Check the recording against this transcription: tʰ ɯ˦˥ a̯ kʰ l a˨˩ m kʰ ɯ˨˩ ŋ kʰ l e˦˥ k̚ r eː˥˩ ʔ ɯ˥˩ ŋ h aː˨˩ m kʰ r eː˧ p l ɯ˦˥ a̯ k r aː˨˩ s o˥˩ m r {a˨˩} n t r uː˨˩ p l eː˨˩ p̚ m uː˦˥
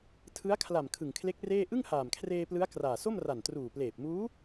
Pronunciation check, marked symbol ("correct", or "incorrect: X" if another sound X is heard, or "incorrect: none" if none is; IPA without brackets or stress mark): correct